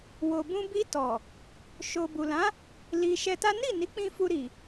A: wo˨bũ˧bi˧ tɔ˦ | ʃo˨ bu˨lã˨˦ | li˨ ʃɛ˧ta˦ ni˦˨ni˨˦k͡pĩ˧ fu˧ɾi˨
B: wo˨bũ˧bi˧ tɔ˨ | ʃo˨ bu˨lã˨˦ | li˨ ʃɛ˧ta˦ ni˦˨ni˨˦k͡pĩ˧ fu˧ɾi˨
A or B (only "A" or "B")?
B